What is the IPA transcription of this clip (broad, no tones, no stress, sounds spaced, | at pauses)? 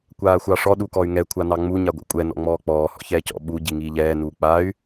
kʷ aː xʷ ɑ ʂ ɔ ɗ u k ɔ y̯ ŋ ɛ kʷʰ a n ɑ ŋ͡m u ɲ a ɡʷ a̰ kʷʼ ɛ n ɔ̰ ŋ͡m ɔː k͡p ɔː h ɔ̰ ç ɛː c ɔ̰ ɓ u ɟ i ŋ iː ʎ ɛː n uː k͡p a y̯